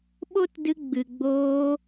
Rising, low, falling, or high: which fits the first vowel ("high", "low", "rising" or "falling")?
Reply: high